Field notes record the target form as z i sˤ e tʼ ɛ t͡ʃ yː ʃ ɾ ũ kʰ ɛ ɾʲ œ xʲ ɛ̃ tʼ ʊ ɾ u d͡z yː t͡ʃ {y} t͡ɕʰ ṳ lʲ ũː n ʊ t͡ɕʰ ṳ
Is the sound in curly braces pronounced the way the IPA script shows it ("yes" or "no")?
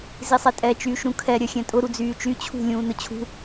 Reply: yes